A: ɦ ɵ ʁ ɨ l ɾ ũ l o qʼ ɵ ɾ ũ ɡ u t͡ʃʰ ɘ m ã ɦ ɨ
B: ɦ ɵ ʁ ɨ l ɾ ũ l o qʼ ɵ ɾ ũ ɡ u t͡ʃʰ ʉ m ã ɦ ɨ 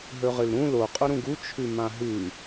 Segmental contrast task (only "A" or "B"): B